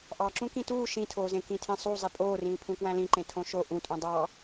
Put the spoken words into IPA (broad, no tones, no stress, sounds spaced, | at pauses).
ʔ ɑ ǁ ũ k ĩ t uː ʃ ĩ tʰ oː z ẽ k ĩ tʰ ẽ sˤ u zˤ i pʼ oː r ĩː pʰ ũ k w æ̃ l ĩ ǃ ẽ tʰ õ ʃ o ʔ ũ tʼ ũ dˤ ɑ